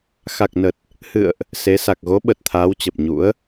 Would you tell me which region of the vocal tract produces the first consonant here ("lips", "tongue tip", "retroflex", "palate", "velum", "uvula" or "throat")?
velum